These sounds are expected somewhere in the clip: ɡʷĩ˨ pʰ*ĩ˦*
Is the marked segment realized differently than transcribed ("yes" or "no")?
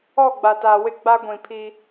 yes